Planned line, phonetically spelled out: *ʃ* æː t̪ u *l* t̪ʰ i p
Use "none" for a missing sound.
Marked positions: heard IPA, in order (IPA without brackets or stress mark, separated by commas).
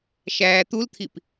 ʃ, l